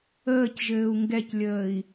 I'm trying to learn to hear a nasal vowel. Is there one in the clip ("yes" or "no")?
no